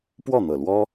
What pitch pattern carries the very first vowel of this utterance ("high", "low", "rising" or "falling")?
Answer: falling